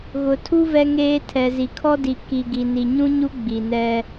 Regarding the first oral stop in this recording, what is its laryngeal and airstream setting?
aspirated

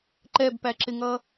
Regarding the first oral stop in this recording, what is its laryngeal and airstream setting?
click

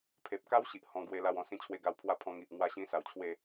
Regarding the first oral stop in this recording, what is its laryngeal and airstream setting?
aspirated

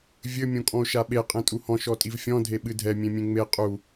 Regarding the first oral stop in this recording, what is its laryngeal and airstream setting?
ejective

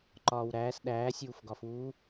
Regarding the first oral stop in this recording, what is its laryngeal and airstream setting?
click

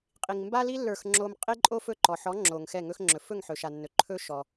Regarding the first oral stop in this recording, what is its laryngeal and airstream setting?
ejective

